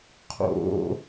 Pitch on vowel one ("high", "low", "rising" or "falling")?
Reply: high